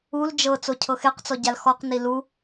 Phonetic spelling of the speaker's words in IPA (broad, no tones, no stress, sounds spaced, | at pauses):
u l d͡ʒ ɤ t͡s o cʰ ɤ x e q t͡s ɔ ɟ a l x ɔ q n i l u